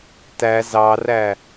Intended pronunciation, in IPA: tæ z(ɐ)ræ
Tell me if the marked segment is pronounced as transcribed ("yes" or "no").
no